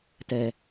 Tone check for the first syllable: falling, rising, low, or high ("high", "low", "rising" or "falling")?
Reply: low